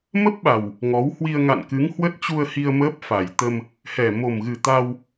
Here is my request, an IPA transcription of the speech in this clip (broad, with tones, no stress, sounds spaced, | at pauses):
m ə˦˥ p̚ ɓ a˨˩ w | ŋ ɔ˨˦ w h w i˧ ə̯ ŋ a̰˧˨ n k ɨ˨˦ ŋ h w ə˦˥ t̚ t͡ɕ u˧ ə̯ h i˧ ə̯ m əː˦˥ p̚ f a˨˩ j t̪ ə˧ m | h ɛ˨˩ m o˨˩ m ɣ ɨ˨˩ t̪ a˧ w